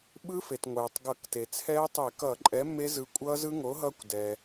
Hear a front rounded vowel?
no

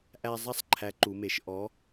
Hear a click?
yes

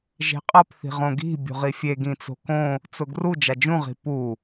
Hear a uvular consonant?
yes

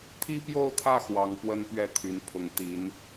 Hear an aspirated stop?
yes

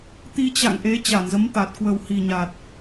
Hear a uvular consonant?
no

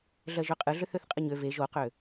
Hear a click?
no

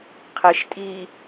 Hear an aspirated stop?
yes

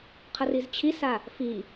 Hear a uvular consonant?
yes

